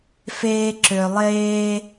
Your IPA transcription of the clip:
feː˦ǁø˨lˠeː˥

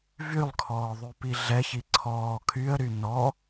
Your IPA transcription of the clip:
vylˠkʰɔː ðˤypiɮɛçi ǀʰɔː kʰyə̯ɾy nɔ

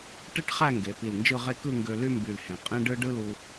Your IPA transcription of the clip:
ʈe˥ʈχæ˥˧ŋɡe˩˧ pi˧˩lnd͡ʒɯ˥˧ʁe˥˧ kɯ˥˧ŋɡø˧ ly˥mby˧˩lhẽ˩˧ qʼẽ˥ɖɯ˥ ɖɯ˥lu˧

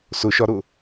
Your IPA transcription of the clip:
sʊʃɒɾʊ

